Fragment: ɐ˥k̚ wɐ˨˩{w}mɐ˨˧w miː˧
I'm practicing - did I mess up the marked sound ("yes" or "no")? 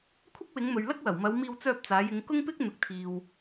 no